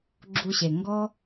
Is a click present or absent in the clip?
present